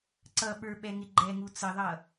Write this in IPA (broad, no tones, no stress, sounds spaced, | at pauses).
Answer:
ǀ ʌ ɓ ə˞ ɓ ɛ ŋ ɪ ɡ͡ǃ ɛ ŋ u t͡s ə ðˤ ʌ